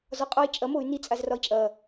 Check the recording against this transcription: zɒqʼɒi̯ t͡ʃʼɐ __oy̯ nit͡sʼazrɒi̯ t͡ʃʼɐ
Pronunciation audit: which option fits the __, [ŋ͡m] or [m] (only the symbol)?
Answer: m